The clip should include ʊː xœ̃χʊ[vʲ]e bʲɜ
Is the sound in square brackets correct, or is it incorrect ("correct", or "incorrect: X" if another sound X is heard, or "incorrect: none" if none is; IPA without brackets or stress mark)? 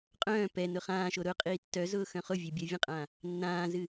correct